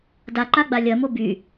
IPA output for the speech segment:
d a ǃ a ɡ͡b a lʲ ɐ m o b y

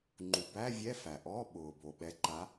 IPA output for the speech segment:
ŋ͡ǃ u˩ b æ˧˥˧ vʲ ɛ˧˥˧ f æ˩ ʔ ɔ˧˥˧ ɓ ʊː˩ b o˩ ɓ ɛ˨˥ ǃ a˨˥

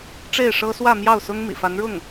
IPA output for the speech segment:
ʈ͡ʂ e˥˩ ɪ̯ ʂ ɤ˥ s w ä˥˧ m j ɑ˥˩ ʊ̯ s ʊ˥ ŋ m ḭ˨˩ f a˧˥ n ɻ ʊ˥˩ ŋ

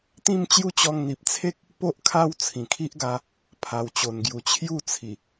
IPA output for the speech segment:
t̪ ĩ˥˧ m t͡ɕ j u˦ t͡ɕ ɔ˧ ŋ n̪ i˨ p̚ t͡sʰ e˦ k̚ | p o˦ ʔ kʰ a˦ w t͡sʰ ĩ˨˩ kʰ i˦ ʔ ɡ a˨˦ | pʰ a˨˩ w t͡ɕ o˨˩ n ɡ j u˨˩ t͡ɕʰ j u˥˧ t͡sʰ i˨˩

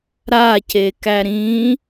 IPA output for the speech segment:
ɾ a c e k æ ɾ ĩ

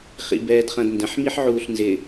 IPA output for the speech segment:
χ ḭ b ɛː d χ ɐ̃ d n d ə̃ ħ m i ħ ʕ uː ɬ n z ɪ

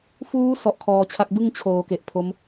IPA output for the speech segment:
f uː˦˥ s ɔ˦˥ ʔ kʰ ɔː˧ t͡ɕʰ a˥˩ k̚ b ɯ˥˩ ŋ t͡ɕʰ oː˩˦ k e˨˩ ʔ pʰ o˦˥ m

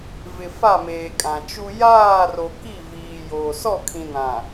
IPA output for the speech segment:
v ɪ˨ f a˦˨ m eː˨ kʼ ã˨ t͡ʃ u˦ j aː˦˨ r o˨ k i˦˨ v iː˨ j oː˨ s ɔ˦˨ kʰ ĩ˨ n ã˨

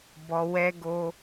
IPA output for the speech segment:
b ɔ˧ w ɛ˦ ɡ o˦

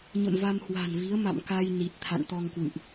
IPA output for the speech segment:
ɲ ə̰˧˨ m v a˧ m h w a̤˨˩ n v i˨˦ ə̯ m a̰˧˨ m k a˧ j n i˨˩ t̚ t̪ʰ a̰˧˨ n t̪ ɔ˧ ŋ k w ɨ̰˧˨ ʔ

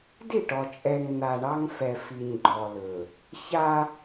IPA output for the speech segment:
d i˦˨ ʈ ɔ˨ t͡ʃʼ ɛ˨ ŋ n̪ a˨ ɳ ɑ˦ ŋ f ɛ˨ f i˨ ɲ ɡ͡ǃ ɔ˨ l ɵ˨ | ç a˦

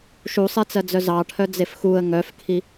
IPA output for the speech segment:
ʃ u sˤ e t͡s ɜ d͡z œ z ɑ ʈʰ œ d͡z e f x u ə̯ ŋ œ f kʰ i

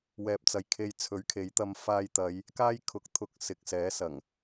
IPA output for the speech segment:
w ɛː˨ p̚ t͡s ɐ˨ j kʰ e˧ j t͡sʰ ɵ˨˥ ɥ kʰ e˨˥ j t̪ ɐ˧ m f aː˧ j t̪ ɐ˨˧ j | k aː˥ j kʰ ʊ˨ k̚ t̪ʰ ʊ˧ k̚ s ɪ˨ k̚ s ɛː˨˥ s ɐ˨˩ ŋ

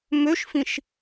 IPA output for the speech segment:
m ø ʃ f ĩ ʃ

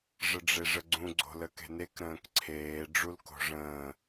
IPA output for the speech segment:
ʐ ə ɖ͡ʐ e ʐ ə ɡ͡ǀ ũ ɡ͡ǀ o̤ l ə k e̤ n e k ɾ ə̃ː k ǀʰ eː ɖ͡ʐ u l k o̤ ʐ ə̃ː

